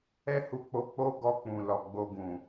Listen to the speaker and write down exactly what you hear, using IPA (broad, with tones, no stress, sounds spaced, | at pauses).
ɛ˦ h u˧ k͡p o˧ k͡p o˦ ɡ ɔ˧ k͡p ũ˨ l ɔ˨ ɡ͡b o˧ ɡ ũ˨